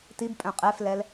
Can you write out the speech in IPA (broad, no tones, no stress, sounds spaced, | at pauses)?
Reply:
t i b pʼ œ̃ qʼ ɛ f l ɛ l